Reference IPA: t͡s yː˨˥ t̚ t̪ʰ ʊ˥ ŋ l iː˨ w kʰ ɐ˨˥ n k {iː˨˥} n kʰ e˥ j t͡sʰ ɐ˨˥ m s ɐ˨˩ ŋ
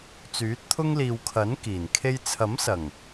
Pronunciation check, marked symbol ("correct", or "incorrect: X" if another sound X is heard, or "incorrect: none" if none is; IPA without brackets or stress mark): incorrect: iː˨˩